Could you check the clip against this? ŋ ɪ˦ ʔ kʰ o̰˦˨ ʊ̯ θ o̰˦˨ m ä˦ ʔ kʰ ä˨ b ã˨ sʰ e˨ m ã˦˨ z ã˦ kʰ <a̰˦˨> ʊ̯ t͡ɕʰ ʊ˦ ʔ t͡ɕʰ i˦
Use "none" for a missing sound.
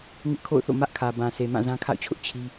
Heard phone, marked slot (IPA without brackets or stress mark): a̰˦˨